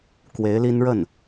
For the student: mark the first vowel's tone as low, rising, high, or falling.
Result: rising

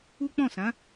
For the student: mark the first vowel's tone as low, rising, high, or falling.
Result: high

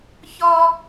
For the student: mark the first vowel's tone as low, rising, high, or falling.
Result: high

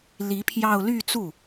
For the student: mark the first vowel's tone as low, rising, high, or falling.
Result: rising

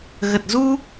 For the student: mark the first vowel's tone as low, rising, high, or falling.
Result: low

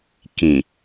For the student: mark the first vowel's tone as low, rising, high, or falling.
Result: low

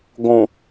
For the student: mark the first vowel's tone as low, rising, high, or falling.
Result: low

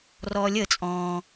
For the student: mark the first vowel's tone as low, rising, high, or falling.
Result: low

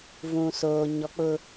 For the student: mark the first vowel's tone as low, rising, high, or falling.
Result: low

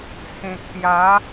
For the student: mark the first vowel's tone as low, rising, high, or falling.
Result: low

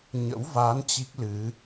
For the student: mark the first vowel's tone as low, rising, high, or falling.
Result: rising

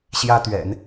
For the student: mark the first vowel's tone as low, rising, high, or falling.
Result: high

